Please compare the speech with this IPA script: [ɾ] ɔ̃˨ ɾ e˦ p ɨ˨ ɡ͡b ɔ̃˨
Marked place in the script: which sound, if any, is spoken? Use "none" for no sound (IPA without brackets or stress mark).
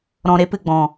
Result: ɾ